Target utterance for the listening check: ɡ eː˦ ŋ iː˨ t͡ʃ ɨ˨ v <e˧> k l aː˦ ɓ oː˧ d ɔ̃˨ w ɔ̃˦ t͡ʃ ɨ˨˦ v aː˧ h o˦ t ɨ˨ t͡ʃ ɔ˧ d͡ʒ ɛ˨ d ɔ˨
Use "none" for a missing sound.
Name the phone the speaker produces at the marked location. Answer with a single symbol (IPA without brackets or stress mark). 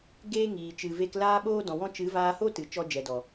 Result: e˧